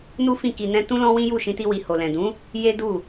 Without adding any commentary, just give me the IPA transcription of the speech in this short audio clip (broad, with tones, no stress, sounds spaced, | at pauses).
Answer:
n u˦ f ĩ˦˨ k i˧ n ɛ̃˦ t ũ˦ l ɔ̃˦ w ĩ˦ j u˦˨ ʃ ĩ˧ t i˧ w i˨ h o˨ l ɛ̃˨ d ũ˨˦ | j e˦ d u˦˨